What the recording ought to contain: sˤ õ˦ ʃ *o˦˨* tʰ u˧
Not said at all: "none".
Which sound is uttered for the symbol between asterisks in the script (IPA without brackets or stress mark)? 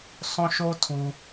o˦